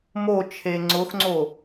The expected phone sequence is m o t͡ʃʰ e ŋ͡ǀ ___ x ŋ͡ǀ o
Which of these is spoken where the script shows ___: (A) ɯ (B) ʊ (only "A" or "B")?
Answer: B